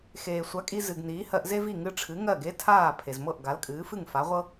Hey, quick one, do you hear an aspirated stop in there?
yes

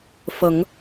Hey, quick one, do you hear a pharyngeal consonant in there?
no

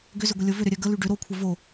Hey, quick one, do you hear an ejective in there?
no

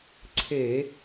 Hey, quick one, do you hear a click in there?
yes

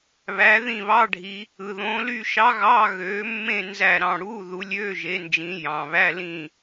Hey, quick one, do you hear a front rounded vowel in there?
yes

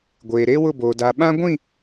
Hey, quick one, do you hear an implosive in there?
yes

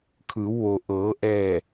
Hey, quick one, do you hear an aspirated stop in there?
yes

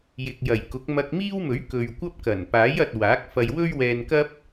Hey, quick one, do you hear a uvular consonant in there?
no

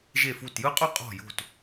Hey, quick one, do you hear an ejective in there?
yes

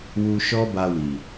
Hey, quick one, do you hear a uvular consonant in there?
no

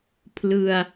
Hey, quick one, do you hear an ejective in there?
no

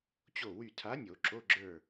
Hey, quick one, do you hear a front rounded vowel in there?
yes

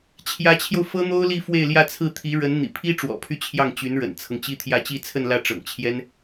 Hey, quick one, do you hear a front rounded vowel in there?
yes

